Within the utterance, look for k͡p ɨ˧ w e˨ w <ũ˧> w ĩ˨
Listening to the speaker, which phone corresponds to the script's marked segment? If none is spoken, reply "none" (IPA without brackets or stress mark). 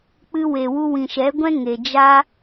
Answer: u˧